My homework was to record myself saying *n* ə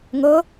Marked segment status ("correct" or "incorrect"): incorrect